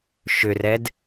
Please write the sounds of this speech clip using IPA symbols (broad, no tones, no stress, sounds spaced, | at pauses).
ʃ ʏ r ɛ d